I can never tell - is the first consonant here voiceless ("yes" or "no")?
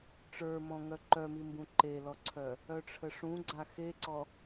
yes